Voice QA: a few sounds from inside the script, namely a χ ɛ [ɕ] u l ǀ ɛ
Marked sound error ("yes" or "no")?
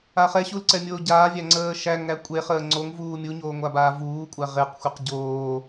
no